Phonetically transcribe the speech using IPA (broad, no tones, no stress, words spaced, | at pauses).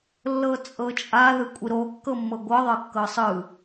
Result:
lːɤt͡sʼɤt͡ʃʼa ðɯkʷʼiɾo kːɤmːɤɡʷɤ ðˤɤkːɤsˤɯ